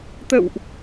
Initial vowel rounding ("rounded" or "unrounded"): unrounded